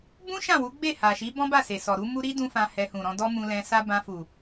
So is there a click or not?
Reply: no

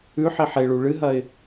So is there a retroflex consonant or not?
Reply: yes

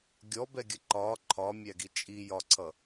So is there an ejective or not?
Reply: yes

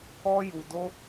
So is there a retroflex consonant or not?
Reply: no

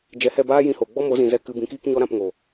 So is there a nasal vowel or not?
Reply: yes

